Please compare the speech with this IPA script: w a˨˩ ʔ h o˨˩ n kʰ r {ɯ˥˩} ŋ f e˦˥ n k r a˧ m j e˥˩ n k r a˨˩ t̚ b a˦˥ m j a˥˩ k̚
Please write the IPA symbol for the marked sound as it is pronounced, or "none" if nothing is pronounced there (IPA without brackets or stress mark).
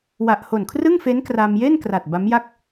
ɯ˥˩